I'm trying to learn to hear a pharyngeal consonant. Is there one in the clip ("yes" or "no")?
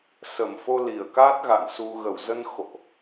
no